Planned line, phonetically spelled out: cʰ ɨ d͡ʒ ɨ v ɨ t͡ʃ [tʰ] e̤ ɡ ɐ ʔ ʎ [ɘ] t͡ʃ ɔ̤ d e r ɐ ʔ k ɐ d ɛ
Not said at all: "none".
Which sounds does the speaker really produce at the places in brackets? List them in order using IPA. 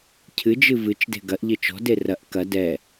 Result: d, ɘ

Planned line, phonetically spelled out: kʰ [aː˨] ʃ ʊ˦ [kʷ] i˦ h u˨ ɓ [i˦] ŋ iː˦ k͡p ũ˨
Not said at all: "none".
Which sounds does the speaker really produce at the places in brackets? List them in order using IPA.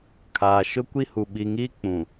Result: aː˨, kʷ, i˨

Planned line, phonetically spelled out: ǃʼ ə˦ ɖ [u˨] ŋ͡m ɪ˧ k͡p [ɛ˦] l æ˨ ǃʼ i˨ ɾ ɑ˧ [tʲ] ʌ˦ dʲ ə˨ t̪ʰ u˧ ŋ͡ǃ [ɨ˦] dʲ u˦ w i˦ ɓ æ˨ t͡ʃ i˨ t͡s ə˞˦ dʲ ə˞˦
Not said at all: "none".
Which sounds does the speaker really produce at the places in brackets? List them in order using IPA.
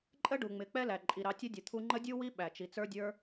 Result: u˨, ɛ˦, tʲ, ə˦

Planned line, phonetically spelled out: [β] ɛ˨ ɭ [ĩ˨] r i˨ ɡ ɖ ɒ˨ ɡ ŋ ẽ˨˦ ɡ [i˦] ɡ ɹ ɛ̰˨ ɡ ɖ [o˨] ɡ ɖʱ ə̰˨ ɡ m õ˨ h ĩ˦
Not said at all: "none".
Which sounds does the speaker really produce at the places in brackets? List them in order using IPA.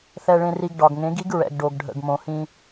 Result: θ, ẽ˨, i˦, o˨

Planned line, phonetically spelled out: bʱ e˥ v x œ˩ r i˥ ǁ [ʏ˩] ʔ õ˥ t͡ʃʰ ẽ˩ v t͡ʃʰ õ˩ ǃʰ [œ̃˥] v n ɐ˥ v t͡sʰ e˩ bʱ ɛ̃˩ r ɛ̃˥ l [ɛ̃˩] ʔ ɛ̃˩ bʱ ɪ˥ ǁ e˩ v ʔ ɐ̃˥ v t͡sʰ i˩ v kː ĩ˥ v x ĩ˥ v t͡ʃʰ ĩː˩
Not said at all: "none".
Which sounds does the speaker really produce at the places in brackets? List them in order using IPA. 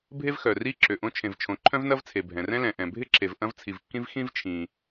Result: ʏ˩, œ̃˥, ɛ̃˩

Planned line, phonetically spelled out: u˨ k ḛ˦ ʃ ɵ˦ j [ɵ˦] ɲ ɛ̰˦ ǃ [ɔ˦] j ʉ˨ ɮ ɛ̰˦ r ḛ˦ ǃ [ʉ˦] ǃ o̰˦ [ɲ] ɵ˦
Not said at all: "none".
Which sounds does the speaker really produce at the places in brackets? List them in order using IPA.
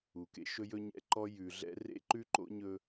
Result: ɵ˦, ɔ˦, ʉ˦, ɲ

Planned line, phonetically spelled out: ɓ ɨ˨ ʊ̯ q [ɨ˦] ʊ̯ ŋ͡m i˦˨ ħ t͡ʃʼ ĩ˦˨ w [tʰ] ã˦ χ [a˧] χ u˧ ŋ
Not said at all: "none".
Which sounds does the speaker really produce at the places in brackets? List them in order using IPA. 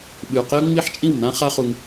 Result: e˦, n, a˦

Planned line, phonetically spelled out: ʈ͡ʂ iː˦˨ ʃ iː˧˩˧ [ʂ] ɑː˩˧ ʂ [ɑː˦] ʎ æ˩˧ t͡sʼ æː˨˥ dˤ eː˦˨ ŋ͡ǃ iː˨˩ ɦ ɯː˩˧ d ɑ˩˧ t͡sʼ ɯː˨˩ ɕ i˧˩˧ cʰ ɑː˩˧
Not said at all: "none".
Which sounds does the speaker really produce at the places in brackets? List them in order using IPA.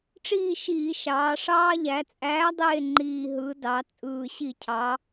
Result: ʃ, ɑː˦

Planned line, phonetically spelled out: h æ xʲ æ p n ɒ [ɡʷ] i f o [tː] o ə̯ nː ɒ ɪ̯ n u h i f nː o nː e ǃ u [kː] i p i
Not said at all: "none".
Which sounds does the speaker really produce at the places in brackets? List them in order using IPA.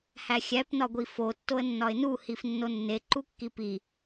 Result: ɡʷ, tː, kː

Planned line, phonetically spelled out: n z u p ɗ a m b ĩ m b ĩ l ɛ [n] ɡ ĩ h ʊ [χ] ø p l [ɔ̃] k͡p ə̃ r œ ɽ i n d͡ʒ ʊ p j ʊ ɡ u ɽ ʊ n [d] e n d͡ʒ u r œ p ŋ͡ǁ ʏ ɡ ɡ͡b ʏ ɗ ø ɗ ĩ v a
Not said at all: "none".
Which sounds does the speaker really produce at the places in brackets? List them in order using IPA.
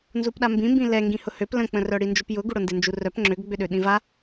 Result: ŋ, h, ə̃, d

